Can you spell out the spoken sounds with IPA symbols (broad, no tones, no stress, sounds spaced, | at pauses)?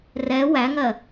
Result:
r ɛ w æ ŋ ɜ